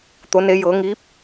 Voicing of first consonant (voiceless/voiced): voiceless